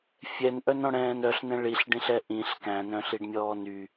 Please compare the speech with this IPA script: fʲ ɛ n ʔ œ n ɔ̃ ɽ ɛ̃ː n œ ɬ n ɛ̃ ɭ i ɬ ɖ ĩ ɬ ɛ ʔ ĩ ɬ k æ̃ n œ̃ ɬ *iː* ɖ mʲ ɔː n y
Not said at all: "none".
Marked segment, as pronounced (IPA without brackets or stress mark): i